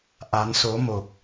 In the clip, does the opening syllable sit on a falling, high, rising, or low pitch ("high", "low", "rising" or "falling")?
rising